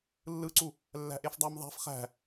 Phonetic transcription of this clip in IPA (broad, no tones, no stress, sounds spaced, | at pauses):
lː ɯ ǀ u | lː æ̤ ʔ e f dˤ æ m ðˤ æ̤ f χ æ̤